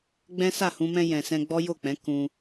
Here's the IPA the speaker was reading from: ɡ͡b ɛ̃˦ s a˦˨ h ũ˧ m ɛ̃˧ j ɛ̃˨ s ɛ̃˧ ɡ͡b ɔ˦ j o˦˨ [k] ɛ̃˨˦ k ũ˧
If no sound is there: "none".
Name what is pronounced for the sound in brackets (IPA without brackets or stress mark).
k͡p